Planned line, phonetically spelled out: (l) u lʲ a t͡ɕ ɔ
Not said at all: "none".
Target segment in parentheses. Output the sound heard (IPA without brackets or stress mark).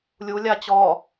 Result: lʲ